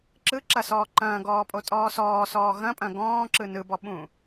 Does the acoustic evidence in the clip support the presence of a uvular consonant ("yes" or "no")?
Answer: no